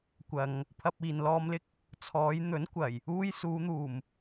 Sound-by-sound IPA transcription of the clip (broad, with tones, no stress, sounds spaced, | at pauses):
kʷ ɐ˨ ŋ | pʰ ɐ˧ p̚ iː˨ n l ɔː˧ m l ɪ˥ k̚ | t͡sʰ ɔː˨˧ j n̪ ɵ˨˥ n kʷ ɐ˨˩ j | uː˥ j s uː˨˧ n̪ uː˨˩ m